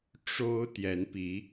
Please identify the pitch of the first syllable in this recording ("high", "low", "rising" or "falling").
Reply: high